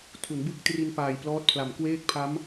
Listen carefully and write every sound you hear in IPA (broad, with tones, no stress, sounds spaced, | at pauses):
tʰ u˩˦ n b ɯ˦˥ k̚ t r i˧ n p aː˨˩ j p l ɔː˦˥ t̚ pʰ l a˨˩ m k w eː˥˩ k̚ pʰ a˦˥ m